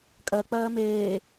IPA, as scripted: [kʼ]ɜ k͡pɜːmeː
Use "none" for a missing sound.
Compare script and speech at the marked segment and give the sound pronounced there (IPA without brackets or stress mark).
kʼ